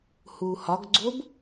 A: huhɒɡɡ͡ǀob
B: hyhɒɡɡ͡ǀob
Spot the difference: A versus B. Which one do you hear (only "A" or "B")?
A